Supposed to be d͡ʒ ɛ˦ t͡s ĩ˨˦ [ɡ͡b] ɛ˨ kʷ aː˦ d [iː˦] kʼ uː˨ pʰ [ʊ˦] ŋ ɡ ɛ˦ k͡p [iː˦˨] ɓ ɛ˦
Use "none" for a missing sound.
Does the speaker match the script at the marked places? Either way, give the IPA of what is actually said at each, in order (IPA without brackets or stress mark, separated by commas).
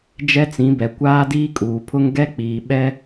b, iː˦, ʊ˦, iː˨